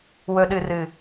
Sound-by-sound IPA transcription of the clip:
w ɵ˨ ɗ ɨ˨ r ɨ˨

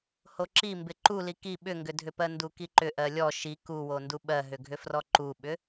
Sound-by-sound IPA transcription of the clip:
h o ǁ i m b ɪ ǃ u l i k i ɓ ʏ ŋ ɡ ʏ dʱ ʏ p ɜ n d u k i ǃ ʏ ʔ ɜ lʲ ɔ ʃ i k u w o n d u ɓ ɜ ɦ ʏ ɡʱ ʏ f r ɔ ǃ u ɓ ʏ

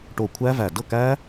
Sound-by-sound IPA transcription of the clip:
ʈ o˧˩ kʷʰ æ˦˥ v æ˧˩ d ɤ˥˩ k æ˦˥

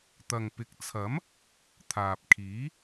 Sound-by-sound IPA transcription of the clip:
t̪ ɐ˨ ŋ p ɪ˨˥ k̚ t͡sʰ ɐ˨˥ m | t̪ʰ aː˨ p̚ kʰ iː˨˥

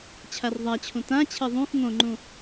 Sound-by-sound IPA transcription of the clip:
t͡ɕʰ a r ðˤ a t͡ɕʰ ũ t ã t͡ɕʰ e ðˤ ũ x ŋ õ ŋ͡ǃ ũ

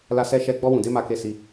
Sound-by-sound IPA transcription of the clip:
l a˧ s ɛ˧ ʃ ɛ˧ ɡ͡b ɔ˧ w ũ˨ d e˧ m a˧ k e˧ s i˧

